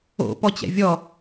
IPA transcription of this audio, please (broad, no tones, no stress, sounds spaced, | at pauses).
o̰ p ɔ t͡ɕ ɛ̰ vʲ ɔ